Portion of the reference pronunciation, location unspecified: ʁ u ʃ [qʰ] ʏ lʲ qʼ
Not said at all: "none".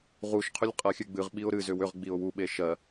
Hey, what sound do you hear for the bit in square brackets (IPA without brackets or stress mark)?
qʰ